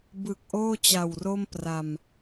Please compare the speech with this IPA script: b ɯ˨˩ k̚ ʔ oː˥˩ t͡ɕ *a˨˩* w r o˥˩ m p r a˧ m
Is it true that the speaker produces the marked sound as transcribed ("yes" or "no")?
yes